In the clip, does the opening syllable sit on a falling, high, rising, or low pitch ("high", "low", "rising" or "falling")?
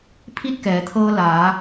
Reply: falling